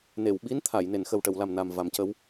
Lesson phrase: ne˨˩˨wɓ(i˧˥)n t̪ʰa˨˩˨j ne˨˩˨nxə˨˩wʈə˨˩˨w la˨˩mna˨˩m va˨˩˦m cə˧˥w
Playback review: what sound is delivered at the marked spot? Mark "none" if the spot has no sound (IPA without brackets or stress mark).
i˧˥